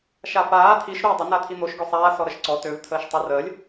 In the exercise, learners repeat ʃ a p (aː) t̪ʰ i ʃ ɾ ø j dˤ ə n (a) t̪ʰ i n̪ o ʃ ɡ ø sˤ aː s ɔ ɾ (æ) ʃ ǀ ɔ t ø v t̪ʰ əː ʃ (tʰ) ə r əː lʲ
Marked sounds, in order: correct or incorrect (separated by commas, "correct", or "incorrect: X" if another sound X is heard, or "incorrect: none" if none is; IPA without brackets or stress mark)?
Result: correct, correct, incorrect: ə, incorrect: tˤ